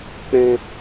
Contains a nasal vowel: yes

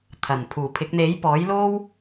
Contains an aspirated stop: yes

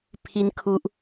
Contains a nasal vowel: no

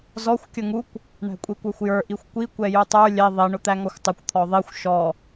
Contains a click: no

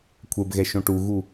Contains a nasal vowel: yes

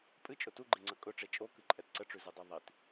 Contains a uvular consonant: no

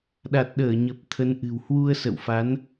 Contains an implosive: yes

